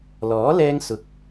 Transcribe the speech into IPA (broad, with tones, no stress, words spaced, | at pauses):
lɔː˨˥ lɛː˧ŋsʊ˨k̚